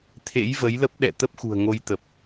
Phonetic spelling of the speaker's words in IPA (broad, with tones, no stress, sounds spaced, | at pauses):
t̪ʰ ḛ˧˥ j v ə˨˦ j l ə˦˥ p̚ ɗ ɛ̰˧˨ t̪ ə˦˥ p̚ x ṳ˨˩ ə̯ ŋ o˧ j t̪ ə˨˩ p̚